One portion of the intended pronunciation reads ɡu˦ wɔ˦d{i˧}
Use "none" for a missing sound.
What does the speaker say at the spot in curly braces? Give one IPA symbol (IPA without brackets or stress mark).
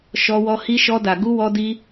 i˦